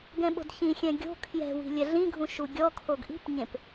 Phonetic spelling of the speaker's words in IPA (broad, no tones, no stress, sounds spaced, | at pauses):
ɡ ɛ̃ ɓ o̤ d ç ĩ xʲ ɛ̃ ɡʲ o̤ kʰ j ɛ̤ w i̤ lʲ ɛ ɮ ĩ ɡʱ ũ ʃ u ɡʲ ɔ kʰ o ɡ ʔ i̤ p ɲ ẽ p